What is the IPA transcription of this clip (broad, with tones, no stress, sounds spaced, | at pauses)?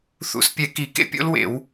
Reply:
θ ṵ˧˩˧ s pʲ ɛ˧˩˧ k i˧˩˧ k ḛ˦˥ pʲ o̰˦˥ l w ḛ˧˩˧ w